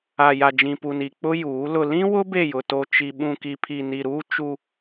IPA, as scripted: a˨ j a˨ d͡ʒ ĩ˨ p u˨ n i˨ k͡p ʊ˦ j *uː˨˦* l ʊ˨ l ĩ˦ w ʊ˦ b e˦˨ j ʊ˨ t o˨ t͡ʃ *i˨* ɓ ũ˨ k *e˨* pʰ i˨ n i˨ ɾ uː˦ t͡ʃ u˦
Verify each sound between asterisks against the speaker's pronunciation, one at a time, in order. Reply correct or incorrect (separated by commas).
correct, correct, incorrect